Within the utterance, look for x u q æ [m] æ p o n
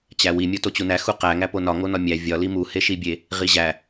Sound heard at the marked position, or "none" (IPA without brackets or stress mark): ŋ